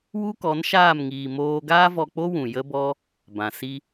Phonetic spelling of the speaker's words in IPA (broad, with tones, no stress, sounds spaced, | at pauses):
w u˦ k ɔ˨˦ n ʃ aː˦˨ m ŋ iː˨ m oː˦ ɡ aː˦ v ɔ˧ k͡p o˦ w ũ˨ j ə˦ b ɔ˦ | b ã˨ s i˦